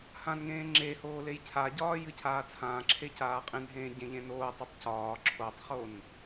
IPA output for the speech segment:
hãnŋẽː ŋ͡ǁehoː lejcʰaɟɒː jɨcʰaːt͡sʰãːǁʰe caːqʼẽnɦẽː ɟẽʎẽnoːtˤɨtˤ cɒː ǁʰotˤχon

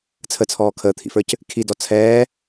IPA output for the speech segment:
t͡sʰət͡sʰɔː kʰəːt̪ʰḭfə˞c | kʰidɔ t͡sʰɛː

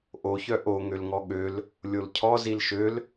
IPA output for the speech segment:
ʔoçœ ʔoŋølŋɔ ɠøl | lʲolcʰɔ zilʃøl

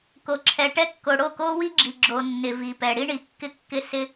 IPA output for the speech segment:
ko˨ǁʰɛ˨ ʈɛ˦kːo˨ ɽo˦˨ko˦wi˦ɡ͡ǁi˨ ɡ͡ǁo˨ nːɪ˨vi˨pɛ˨ ɽi˦ɳi˨kːɪ˦kːɪ˦ sɪ˦

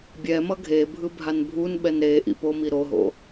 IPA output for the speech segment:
bʲɛ mʌɡʱebʱɯ bʱanbʱunɓɛn ɾe ʔḭpomi ɾoɦo̰

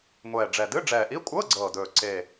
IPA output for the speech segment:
ŋʷɛː˨˩ɖ͡ʐɛ˨˩ dɨ˧˥˧ ɖ͡ʐɛː˨˩ʔi˧˥˧ kʷʼɤː˧˥˧ɡ͡ǀɤː˨˩dɵː˨˩ ǀe˨˩

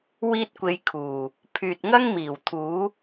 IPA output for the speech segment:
wiː˧t̚kʷe˨˧j kʰuː˨˩ | pʰyː˨t̚ŋɐ˥ŋmiː˨˩w t̪ʰuː˨˥

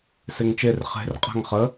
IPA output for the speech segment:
seŋt͡ʃer χe̤r qʼa̤ŋχə

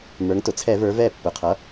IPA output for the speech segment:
mə˞˩˧ŋtʊ˩t͡sʰɛ˧˩˧və˞˩˧ vɛ˥˨ pːʊ˩˧qʰʌ˩˥

